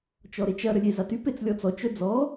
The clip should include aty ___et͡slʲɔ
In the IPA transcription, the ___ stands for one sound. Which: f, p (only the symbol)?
p